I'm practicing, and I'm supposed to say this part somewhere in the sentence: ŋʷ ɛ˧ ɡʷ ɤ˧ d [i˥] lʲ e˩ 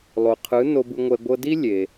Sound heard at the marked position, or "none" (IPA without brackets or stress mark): i˥